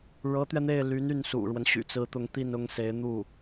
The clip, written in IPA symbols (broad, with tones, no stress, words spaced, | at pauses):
ɻɤ˧˥t̪ɥɛ˧n̪e˥˩ɪ̯ly˧˥n y˥˩nsṵ˨˩ɻwə˦nɕy̰˨˩ t͡sɹ̩˧˥t̪ʊ˧˥ŋt̪i˥˩n ʊ˥ŋse˧˥ɪ̯ n̪u˥˩